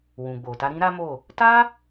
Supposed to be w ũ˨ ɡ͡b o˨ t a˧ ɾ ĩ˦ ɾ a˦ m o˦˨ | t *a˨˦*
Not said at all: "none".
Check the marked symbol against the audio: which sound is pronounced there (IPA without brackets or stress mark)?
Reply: a˦